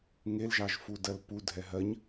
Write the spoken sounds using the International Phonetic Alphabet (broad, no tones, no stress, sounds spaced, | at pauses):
ŋ e l ʒ ɑ ʒ f u d ɜ l p u dʱ ɛ ɦ ɜ ɲ